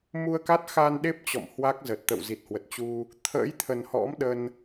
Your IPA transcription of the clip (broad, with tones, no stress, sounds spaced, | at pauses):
m u˧ ə̯ k a˦˥ t̚ x a˧ n ɗ e˦˥ p̚ t͡ɕ ɔ̰˧˨ m h w a˦˥ k̚ z ə˨˩ t̚ t̪ ə̰˧˨ w z i˨˩ t̚ h w ə˨˩ t̚ t͡ɕ u˧ | t̪ʰ ə̰ː˧˥ j t̪ʰ ə˨˩ n h ɔ̰˧˥ m ɗ ə˧ n